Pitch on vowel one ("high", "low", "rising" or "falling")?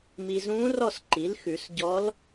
low